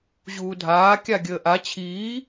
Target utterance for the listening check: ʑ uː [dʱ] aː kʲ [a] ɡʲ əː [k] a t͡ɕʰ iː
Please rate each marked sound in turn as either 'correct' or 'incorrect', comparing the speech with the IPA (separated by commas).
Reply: correct, correct, incorrect